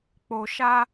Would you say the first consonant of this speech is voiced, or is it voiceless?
voiceless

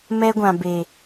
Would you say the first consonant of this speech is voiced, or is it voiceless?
voiced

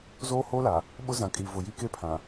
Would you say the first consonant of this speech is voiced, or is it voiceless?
voiced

